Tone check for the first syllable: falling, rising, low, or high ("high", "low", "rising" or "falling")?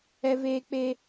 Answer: high